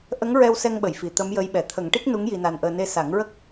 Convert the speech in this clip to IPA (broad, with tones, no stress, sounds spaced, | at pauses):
ʔ ə˧˥ ŋ ɹ ɛ˧ w s ɛ˧ ŋ ɓ ə˨˩˨ j f i˨˩˨ t̪ ə˧˥ m j ə˧˥ j ɓ ɛ˨˩˨ t̪ʰ ə˨˩˦ ŋ ʈ i˦˥ k̚ n u˧˥ ŋ j i˧ n a˧ n ʔ əː˧ n e˧ s a˨˩˦ ŋ ɹ ə˦˥ k̚